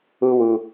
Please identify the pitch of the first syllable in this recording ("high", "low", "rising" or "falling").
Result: high